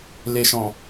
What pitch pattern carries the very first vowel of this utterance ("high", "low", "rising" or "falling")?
low